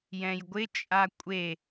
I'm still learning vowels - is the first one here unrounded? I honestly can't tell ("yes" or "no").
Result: yes